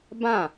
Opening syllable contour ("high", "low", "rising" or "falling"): falling